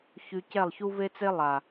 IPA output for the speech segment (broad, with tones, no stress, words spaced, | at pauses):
çy˦ cɛ˦˨lˠçu˦ve˦t͡se˦ lˠa˨